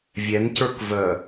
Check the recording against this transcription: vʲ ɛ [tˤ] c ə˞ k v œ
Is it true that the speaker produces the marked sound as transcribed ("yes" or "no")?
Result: no